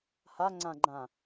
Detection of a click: present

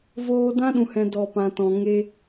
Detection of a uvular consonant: absent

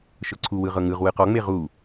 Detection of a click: present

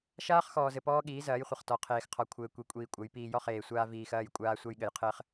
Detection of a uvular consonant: present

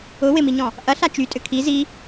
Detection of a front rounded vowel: present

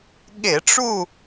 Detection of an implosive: present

